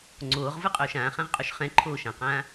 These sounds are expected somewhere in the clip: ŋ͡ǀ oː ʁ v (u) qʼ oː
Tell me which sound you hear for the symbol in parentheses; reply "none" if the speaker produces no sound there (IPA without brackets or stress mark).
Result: ɯ